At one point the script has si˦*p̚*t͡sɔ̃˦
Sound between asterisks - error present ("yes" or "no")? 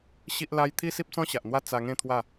no